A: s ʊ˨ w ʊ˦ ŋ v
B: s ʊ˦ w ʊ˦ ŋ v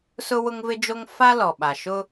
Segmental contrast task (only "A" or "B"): B